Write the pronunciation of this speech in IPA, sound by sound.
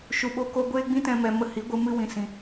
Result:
ʃ u˨ ɓ o˧ k o˧ ɡʷ eː˦ ɡ͡b ĩ˦ t ɛ̃˧ m ɛ˨ m ə˧ h i˨˦ ɡʷ ɨ˧ m ɨ˧ w ĩ˨ s ĩ˨

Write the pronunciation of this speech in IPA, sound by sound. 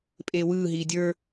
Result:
pʼ eː w ɯː ɦ iː dʲ ə˞

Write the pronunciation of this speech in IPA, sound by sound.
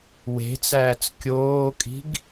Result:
w e̤ t͡s æː t͡s kʲ oː kʼ i̤ ɡ

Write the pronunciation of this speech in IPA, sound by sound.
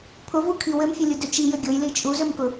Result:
pʰ ʊ v u kʰ i w ɘ m fʲ ɘ lʲ u d ø t͡ʃ i j ɘ ɡʲ ʊ j l i t͡ʃʼ u z ø m k ʊ

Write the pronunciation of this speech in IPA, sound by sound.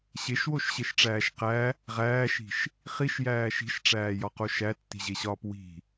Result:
ɕ e ʃ w o ʃ ɕ e ʃ ʈ͡ʂ æː ʃ q æ | ʁ æː ʃ i̤ ʃ | χ i ʃ j æː ʃ i̤ ʃ ʈ͡ʂ æː j ɒ q o ʃ æ tː i̤ ʑ e ɕ ɒː p w i̤

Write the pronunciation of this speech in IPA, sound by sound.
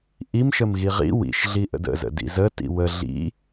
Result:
ʔ i m ʃ ə m ɣ i ʁ ḭ w ḭ ʃ ɮ i ʔ ə̰ d ə̰ z ə̰ d ḭ z ə t ḭ w ə ɮ ḭ

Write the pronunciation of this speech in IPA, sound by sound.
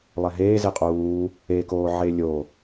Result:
lˠ ɛ ɦ eː z e qʼ uː | e k oː ʕ e lʲ o

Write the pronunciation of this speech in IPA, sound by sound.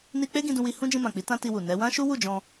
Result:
n i˧ k͡p e˦ ɡ ĩ˧ d ũ˧ w i˧ h ũ˦ d͡ʒ ĩ˧ m ã˨ k͡p i˨˦ t ã˦ t i˧ w u˨ n ɛ˨˦ w ã˦ ʃ u˦ w u˦˨ d͡ʒ ɔ̃˧

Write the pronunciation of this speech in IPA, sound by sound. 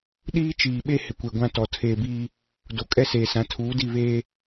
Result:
ɗ iː˦ t͡ʃ iː˨ ɓ e˦ h ɪ˨ kʷ e˨ ɡʷ ã˦ t ɔ˨ tʰ eː˨ b iː˦ | d o˨ kʼ ɛ˦ s eː˨ s ã˨˦ tʰ uː˨˦ d i˦˨ β eː˦

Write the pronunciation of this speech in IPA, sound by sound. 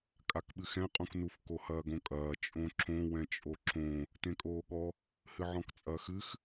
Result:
kʼ a k ɓ ɨ x ɛ̃ qʼ ũ k n u f k o h ɐː ɡ õ kʼ ɐː t͡ʃʼ õ ǁ õ w ɛ̃ t͡ʃʼ o ǁ õ | t ẽ kʼ oː ɠ ɔ | h ɨ ʕ ɔ̃ k t͡sʼ ɐː x ɨ x

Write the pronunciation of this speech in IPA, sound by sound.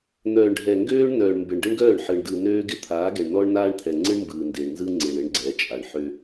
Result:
n̪ œː˨ ɳ ɖʱ ɛ˨ ŋ ɡ øː˦ ɳ n œː˨ ɳ m b ɪ˨ ɳ ɖ ɪ˦ ɳ ɡ œː˦˨ ɳ ħ ɯ˨ ɳ d ɯ˨ n øː˦ ɡ ɪ˦ t̪ʰ aː˨˦ ɡ ɛ˨ ɳ n ɔ˦ ɳ n aː˦ ɳ t̪ʰ ɛ˨ ŋ͡ǀ ɯ˦ ɳ m b ɯː˨ n d ɪː˨ ɳ n z ɯ˦ ŋ͡ǀ ɪ˨ ɳ ɪ˦ ɳ ɡ͡ǀ ɛ˨˦ t͡ʃʼ a˨ ɳ ħ ø˦

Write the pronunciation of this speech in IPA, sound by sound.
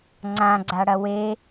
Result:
ŋ͡ǀ ã ɡ͡ǀ a ɽ ɐ w e

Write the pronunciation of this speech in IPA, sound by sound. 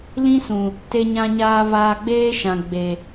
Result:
l ĩ˦ s ũ˨ | t e˧ ɲ ã˧ ɲ aː˧ v aː˧ ɡ͡b eː˦ ʃ ã˨ ɡ͡b e˨

